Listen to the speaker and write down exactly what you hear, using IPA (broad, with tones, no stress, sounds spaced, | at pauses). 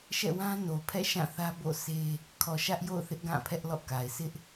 ʃ ɛ̰˦˨ w ã˦ n o˨ pʰ ɛ̰˦˨ ʃ ã˦˨ θ ä˦ b o̰˦˨ s e˦ | kʰ ɔ˨ ʃ ä˦ ʔ j o̰˦˨ ʊ̯ θ ɪ˦ ʔ ɡ ã˦˨ pʰ ɛ˦ ʔ l ɔ̰˦˨ k a˨ ɪ̯ s ɪ˦ ʔ